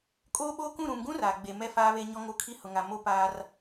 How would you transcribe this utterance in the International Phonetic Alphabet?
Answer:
kʼoː˦ɓoː˦kũ˦˨ ɾũ˨mɡũ˦ raː˨ ɡ͡be˨mɛ˦ faː˦βe˦ ɲɔ˦ŋo˦kʰi˦ hʊ˨ŋa˨mo˦ paː˦r

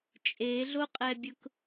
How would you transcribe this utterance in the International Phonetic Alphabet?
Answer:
t͡ʃʼeɮoqʼɛbʲʊk

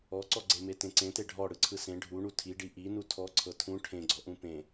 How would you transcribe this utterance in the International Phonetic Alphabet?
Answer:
ɔǀɔɡ͡ǀeme tẽǀẽte ɖʱɔ ɽɯǀʰɯsẽ ɖʱuɳu tʰiɖi ʔi nutʰɔǀʰɤ tʰũ ʈʰẽɡ͡ǀɔʔũ pẽ

